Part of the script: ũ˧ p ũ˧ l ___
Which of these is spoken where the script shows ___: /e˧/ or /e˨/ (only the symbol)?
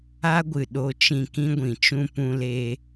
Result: e˧